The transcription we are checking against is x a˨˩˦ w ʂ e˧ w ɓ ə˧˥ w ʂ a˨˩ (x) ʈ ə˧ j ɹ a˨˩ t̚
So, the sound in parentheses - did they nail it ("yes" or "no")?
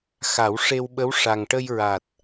no